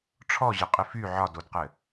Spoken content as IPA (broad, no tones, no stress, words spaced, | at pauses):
ʈ͡ʂʰɔʑɘqʼɪ fy ʕɒdodqɘ